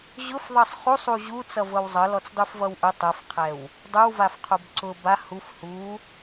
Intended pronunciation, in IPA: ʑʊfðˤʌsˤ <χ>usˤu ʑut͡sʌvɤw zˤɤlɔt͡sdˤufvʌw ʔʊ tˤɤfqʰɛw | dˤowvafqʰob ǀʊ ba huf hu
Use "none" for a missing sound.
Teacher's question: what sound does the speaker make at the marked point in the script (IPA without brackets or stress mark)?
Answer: χ